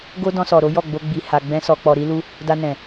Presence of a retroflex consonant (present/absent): absent